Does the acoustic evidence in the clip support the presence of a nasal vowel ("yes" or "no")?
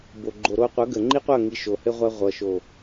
no